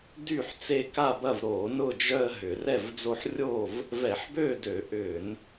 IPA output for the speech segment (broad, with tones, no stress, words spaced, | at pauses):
dy˥˨ħt͡se˦ ka˥˨bɐ˥˨v ɾo˧˩˧nʊ˥˨d͡ʒœ˦ə̯ ɦʏ˧˩˧ rɛ˥˨vd͡zo˦ħ rʲo˥˨v | vɛ˧˩˧ħbø˥˨ dø˧˩˧ʔʏ˧˩˧n